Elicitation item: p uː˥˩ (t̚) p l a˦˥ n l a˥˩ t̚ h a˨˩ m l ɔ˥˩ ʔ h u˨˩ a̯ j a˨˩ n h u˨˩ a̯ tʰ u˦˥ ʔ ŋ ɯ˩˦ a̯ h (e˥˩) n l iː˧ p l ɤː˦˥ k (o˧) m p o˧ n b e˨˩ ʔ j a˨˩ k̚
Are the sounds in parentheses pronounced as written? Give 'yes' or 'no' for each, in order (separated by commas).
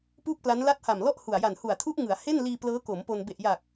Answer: no, yes, no